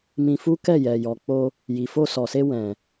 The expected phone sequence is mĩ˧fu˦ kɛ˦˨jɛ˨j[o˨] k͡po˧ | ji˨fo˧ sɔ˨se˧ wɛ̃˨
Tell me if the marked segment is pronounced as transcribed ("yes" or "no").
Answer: no